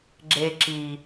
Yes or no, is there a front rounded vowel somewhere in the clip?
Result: no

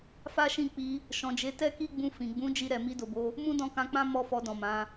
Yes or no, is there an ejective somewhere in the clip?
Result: no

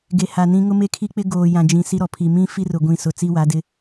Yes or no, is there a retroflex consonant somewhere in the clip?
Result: no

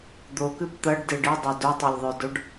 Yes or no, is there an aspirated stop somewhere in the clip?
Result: no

